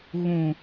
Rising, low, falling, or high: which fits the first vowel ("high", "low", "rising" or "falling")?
low